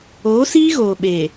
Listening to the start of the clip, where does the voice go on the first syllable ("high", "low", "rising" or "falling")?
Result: rising